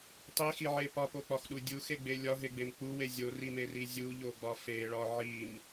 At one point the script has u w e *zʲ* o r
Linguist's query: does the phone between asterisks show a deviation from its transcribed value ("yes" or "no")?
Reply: no